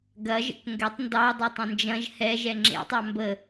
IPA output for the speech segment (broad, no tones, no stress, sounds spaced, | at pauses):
ɡ ɐ ʒ ə̰ k ŋ ɡ ɛ tˤ n d ɑ dˤ e tˤ ə̃ n d͡ʒ ɐ̃ ʒ h ɛ ʒ ɛ ŋ͡ǁ ḛ tˤ ɑ m b ə